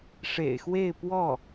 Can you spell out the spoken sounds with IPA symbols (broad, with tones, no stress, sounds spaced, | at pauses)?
ʂ ḛ˨˩ ɪ̯ x w e˥˧ ɪ̯ p w ɔ˥˩